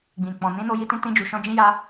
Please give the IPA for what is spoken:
ɡ͡b ĩ˨ k͡p ɔ̃˨ n ĩ˨˦ n o˧ j i˧ t ĩ˧ t ĩ˧ d͡ʒ u˨ ʃ ɔ̃˧ d͡ʒ ĩ˦ j a˦

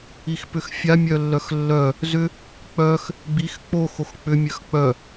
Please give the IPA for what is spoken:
i x p ʏ x fʲ a mʲ œ lː œ x lː œ | z ʏ | k͡p œ x | ɡ͡b i x k͡p o x o x k͡p ʏ mʲ œ x k͡p œ

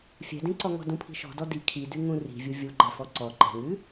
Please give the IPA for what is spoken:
fʲ ɛ̤ d ĩ ǀ ɔ ŋ ɔ̤ d ũ pʰ i̤ ʃ ɔ̤ d ɔ d i kʰ i d ʉ ŋ ũ r i̤ vʲ u vʲ u ɡ͡ǃ ɛ f ɔ ǀ ɔ ǃ ɛ̤ ŋ ʉ

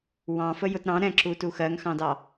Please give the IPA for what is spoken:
w ɑ̃ f ə j ʊ t ɾ ɑ̃ ɾ ɛ̃ ǁ u t u x ɜ ŋ x ɑ̃ d ɑ

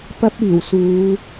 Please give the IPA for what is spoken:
p ɐ˥ p̚ iː˨˩ w s uː˨˧

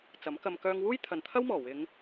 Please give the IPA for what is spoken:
t͡s ɐ˨˥ m k ɐ˧ m k œː˧ ŋ w uː˥ j t̪ʰ ɐ˨ n t̪ʰ ɐ˥ w m ɔː˨˩ w ɪ˨˧ ŋ

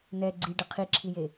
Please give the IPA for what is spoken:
n ɛ ɡ͡ǀ i ɖ ɯ qʰ i ǁʰ i j e

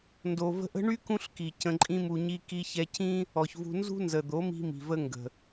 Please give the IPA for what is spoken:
n d o˨ v ə̤˧ ʔ ə̤˦ ɳ y˦ k ũ˦ ɬ k i˨ c ə̃˧ ǃʼ ĩ˦ m u˧ ɲ i˦ k i˧ ç ɛ˧ c ĩ˦ | ɔ˨ ç v ṳ˧ n z ṳ˦ n z ə˨ d̪ o˨˦ m i̤˦ m i̤˨ v ə˦ ŋ ɡ ə̤˨

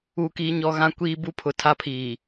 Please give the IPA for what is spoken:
uː˦ k iː˦ ɲ ɔ˦ ɣ ã˦ kʷ iː˦ b u˦ pʰ ʊ˨ tʰ a˦ pʰ iː˨

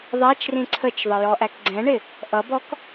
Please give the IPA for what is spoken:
ðˤ æ t͡ʃ r ĩ ǀʰ ə t͡ʃ ðˤ ə j ɔ ʔ æ k ɡ͡ǀ ɛ̃ ɳ ɪ | ʔ ʌ b ɔ k

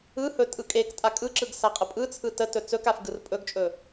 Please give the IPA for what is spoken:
ɯ h ɵ tʼ ɯ kʼ e k tʼ a kʼ ɯ ǁ ɯ ɡ s a qʼ ə pʼ ɯ t͡sʰ ɯ t ə t ɵ t͡s ɵ k a f ɡ ɯ r pʼ ɵ ɡ t͡ʃʼ ɵ

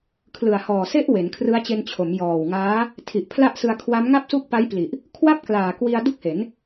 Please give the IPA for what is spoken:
kʰ l ɯ˨˩ a̯ h ɔː˨˩ s e˦˥ ʔ w e˩˦ n kʰ r ɯ˦˥ a̯ t͡ɕ e˧ n t͡ɕʰ o˩˦ m j ɔː˨˩ w ŋ aː˦˥ | tʰ i˨˩ ʔ pʰ l a˥˩ ʔ s ɯ˧ a̯ kʰ w a˦˥ m ŋ a˥˩ p̚ s u˥˩ k̚ p a˦˥ j p l i˨˩ ʔ | kʰ w a˥˩ p̚ k l aː˨˩ k w i˧ a̯ d u˥˩ k̚ h e˩˦ n

